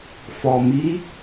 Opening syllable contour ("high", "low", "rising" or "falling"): low